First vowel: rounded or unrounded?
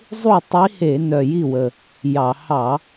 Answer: rounded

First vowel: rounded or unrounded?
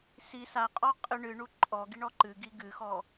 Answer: unrounded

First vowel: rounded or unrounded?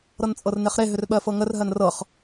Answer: unrounded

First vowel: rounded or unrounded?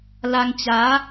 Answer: unrounded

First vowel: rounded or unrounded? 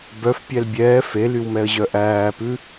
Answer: rounded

